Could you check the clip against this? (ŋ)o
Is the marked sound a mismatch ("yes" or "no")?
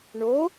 yes